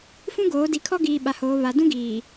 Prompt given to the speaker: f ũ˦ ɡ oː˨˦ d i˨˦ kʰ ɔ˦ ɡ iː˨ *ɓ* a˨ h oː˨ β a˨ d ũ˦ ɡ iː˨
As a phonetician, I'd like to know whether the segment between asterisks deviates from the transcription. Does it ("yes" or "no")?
no